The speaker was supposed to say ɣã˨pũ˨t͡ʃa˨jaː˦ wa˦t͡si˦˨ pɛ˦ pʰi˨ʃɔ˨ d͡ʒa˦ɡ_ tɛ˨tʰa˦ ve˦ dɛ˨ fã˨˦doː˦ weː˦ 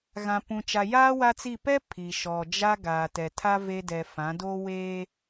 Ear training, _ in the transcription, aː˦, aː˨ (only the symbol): aː˨